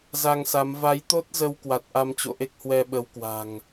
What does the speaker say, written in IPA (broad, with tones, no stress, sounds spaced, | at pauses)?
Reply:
z a˧ ŋ s a˨˦ m v a˨˦ j t̪ o˦˥ t̚ z ə˧ w k w a˨˩ t̚ ʔ a˧ m t͡ɕ o̰˧˨ ʔ e˦˥ k̚ h w ɛ˧ ɓ ə˨˦ w k w a̤˨˩ ŋ